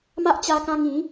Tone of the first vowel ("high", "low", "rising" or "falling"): high